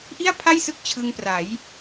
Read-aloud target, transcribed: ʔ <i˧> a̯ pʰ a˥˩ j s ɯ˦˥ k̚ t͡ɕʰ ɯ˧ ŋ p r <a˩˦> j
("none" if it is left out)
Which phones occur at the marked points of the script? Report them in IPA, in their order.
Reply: i˥˩, a˩˦

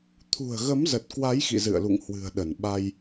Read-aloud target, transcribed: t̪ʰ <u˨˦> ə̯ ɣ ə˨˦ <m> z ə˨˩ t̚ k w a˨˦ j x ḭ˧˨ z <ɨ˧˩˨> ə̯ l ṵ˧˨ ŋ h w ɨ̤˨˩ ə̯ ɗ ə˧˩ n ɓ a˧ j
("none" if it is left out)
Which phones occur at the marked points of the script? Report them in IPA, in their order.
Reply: ṳ˨˩, m, ɨ̰˧˨

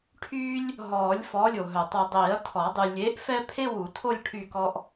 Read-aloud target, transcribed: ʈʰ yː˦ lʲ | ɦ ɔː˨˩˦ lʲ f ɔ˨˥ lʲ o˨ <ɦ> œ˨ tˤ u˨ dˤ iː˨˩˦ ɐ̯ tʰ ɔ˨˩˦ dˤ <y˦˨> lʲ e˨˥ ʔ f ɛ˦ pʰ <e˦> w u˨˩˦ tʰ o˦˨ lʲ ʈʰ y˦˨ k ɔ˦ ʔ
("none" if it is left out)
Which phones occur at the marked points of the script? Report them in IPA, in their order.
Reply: ɦ, y˨, e˦

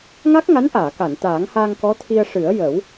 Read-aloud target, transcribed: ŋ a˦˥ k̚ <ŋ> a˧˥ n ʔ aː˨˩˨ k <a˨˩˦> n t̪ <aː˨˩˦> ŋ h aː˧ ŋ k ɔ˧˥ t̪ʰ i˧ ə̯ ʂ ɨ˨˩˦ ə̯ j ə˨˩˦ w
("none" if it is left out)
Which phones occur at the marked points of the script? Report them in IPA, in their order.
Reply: ŋ, a˨˩˨, aː˨˩˦

